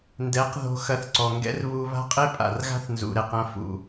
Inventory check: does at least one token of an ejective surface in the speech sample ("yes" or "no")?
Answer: yes